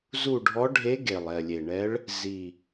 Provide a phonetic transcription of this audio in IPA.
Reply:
zu˦˨ɖʱɔ˧˥ɖʱe˧˥ ɡe˨˩lˠɛ˨˩lʲe˨˩ɳɛ˧˥ɭ | zi˨˩

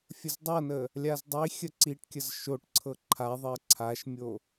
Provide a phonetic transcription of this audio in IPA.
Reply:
fʲəzdˤɤnə | lʲazdˤixʲə ǀiʈkʲəz ʃoʈǀʰɤ ǃʰaðˤɜ ǀʰaʃmʲo

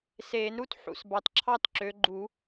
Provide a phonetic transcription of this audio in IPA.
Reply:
seː˨˩˦nɾu˦˥t ħṵ˨sbɑ˨tǁʰɑ˥˧tǁø˨˦ ɡ͡ǃu˨˩˦

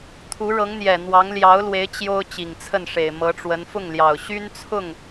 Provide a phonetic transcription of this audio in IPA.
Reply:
t̪ʰu˧˥ɻɤ˧˥ŋn̪jɛ˨˩n̪wɑ˧˥ŋ ljɑ˧˥ʊ̯lwe˧˥ɪ̯ t͡ɕjo˥ʊ̯ t͡ɕi˨˩ŋt͡sʰə˥˩nʂe˨˩ɪ̯ mɤ˧˥ʈ͡ʂwə˧˥n fʊ˥˩ŋljɑ˨˩ʊ̯ɕy˥nt͡sʰʊ˥˩ŋ

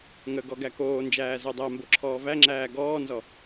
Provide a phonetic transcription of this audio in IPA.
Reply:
ŋəɡɔ ɡækoːnd͡ʒæː zodˤæmbo ǁʰɔːvæŋ͡ǁæː ɡɔːnzɔ

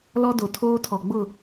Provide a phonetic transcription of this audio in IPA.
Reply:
lɔ˦do˨tʰoː˦tʰɔ˨ ɡ͡bʊ˦˨

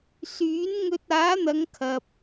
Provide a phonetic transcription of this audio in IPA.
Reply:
syː˨˥nŋɵ˧t̚ aː˨˥n̪ɐ˨˧ŋ kʰɐ˨p̚

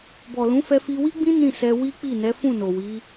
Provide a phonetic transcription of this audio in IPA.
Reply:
bɔ˨lũ˨˦fɛ˧ fi˧wi˦ɡ͡bĩ˦ nĩ˦˨sɛ˧wi˦k͡pi˦˨ nɛ˨˦ fũ˦˨no˨wi˨˦

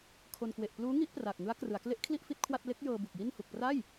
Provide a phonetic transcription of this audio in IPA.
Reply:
kʰo˧n kwe˨˩ʔ pluː˦˥ŋi˦˥ʔ praː˨˩k̚ŋɯ˦˥a̯krɯ˩˦a̯ kle˦˥ʔkʰli˥˩ʔ fi˥˩t̚kʰwa˥˩t̚ le˦˥k̚jɤː˧ bu˨˩k̚ji˥˩n hu˨˩k̚pra˥˩j

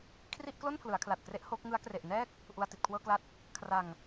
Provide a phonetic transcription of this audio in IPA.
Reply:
kʰri˥˩ʔklo˥˩n pʰlɯ˩˦a̯kʰla˨˩t̚kre˦˥ʔ ho˦˥k̚ ŋɯ˦˥a̯kre˨˩ʔ nɛː˥˩k̚ | ʔu˧a̯ti˨˩t̚kʰwɤː˥˩kla˥˩t̚ | kʰra˨˩ŋ

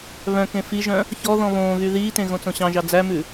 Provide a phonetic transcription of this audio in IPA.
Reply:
βœ̃kẽ fiʒœ̃ | çɔ ðɔ̃βõːɣy ðiːtẽ ɣõt͡sõɕɑ̃ʒɑ d͡zæmʉ

